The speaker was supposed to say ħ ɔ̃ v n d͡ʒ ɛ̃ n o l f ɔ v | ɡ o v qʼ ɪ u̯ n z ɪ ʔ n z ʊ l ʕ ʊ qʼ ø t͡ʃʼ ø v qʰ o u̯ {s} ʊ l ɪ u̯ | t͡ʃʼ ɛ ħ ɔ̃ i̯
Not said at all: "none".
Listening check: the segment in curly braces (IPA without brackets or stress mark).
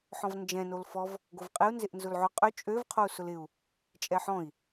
s